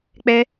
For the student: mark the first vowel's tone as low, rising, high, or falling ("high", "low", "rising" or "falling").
high